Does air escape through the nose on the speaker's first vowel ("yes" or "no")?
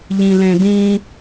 yes